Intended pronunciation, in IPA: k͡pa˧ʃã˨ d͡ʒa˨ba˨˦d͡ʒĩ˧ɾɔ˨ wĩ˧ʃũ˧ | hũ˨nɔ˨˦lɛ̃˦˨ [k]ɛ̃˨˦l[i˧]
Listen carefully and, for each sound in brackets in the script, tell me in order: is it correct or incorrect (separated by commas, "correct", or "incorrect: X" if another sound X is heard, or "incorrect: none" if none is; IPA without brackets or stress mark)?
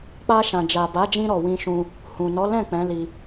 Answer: incorrect: k͡p, correct